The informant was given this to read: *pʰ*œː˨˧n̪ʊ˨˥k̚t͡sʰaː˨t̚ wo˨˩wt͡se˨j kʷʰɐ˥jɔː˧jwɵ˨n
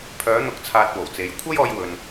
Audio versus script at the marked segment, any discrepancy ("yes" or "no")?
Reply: no